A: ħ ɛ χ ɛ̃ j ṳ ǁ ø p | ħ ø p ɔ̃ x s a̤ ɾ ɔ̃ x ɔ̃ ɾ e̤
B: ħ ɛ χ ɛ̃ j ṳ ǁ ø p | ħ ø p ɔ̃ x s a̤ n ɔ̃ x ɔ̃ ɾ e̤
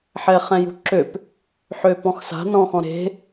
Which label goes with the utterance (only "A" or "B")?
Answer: B